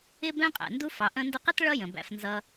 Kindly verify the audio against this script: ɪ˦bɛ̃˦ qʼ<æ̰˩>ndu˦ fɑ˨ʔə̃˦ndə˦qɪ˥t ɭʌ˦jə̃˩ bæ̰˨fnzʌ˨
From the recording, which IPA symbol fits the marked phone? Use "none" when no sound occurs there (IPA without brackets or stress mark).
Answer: æ̰˩